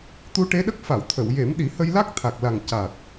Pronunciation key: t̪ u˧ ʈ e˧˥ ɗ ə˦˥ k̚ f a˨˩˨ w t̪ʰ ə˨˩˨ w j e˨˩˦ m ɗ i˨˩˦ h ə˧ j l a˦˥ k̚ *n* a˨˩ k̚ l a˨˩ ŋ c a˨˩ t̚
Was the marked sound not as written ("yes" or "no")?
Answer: yes